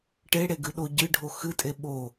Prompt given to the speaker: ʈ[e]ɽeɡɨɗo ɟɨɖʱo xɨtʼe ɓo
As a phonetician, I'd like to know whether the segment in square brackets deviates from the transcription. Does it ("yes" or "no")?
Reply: no